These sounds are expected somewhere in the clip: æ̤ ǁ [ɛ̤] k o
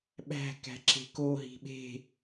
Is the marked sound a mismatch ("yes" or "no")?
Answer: yes